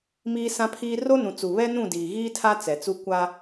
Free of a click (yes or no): yes